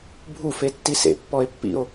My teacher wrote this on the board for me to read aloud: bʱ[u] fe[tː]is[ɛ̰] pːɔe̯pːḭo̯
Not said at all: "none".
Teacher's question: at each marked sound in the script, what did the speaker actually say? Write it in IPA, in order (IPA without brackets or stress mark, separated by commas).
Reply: u, tː, ḛ